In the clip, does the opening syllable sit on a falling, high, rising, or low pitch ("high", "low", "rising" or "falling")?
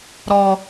low